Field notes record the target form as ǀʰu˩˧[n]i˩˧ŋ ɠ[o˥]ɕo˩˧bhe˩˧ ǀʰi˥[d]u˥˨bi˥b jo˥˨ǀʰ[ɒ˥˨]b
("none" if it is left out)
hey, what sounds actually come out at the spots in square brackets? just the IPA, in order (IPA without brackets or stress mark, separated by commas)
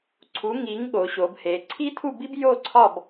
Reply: ŋ, o˩˧, tʰ, ɒ˥˨